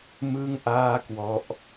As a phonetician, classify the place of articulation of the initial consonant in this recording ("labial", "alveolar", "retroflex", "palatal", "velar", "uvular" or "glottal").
labial